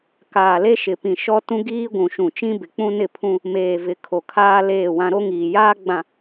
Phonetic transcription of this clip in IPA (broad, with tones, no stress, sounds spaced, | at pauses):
k aː˨ l e˦ ʃ ɪ˨ p ĩ˨ ʃ ɔ˦ t ũ˦ ɡ iː˦ ɡʷ ũ˨ ʃ ũ˨ t͡ʃ ĩ˦ b ɪ˨ k͡p ũ˦ n ɪ˦˨ pʰ ũ˦ | m eː˨ v ɪ˨˦ kʰ o˨ kʰ aː˦ l eː˦˨ w ã˦ ɾ o˦ ŋ iː˨ j aː˦ ɡ͡b ã˨